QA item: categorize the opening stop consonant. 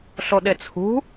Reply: implosive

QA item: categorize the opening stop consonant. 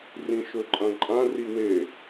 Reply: click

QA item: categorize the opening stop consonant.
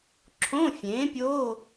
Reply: click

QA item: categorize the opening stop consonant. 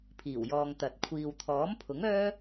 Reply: aspirated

